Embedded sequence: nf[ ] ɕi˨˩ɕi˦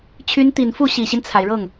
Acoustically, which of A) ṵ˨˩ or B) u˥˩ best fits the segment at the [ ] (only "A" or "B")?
B